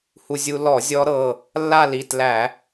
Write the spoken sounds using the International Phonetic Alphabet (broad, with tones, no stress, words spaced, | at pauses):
hu˧zʲu˧ lɔ˧˩˧ zʲɔ˦˥ɾɤ˩˧˩ | lːa˥˧li˩˧˩t læ˧˩˧